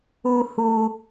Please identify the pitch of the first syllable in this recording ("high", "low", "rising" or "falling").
high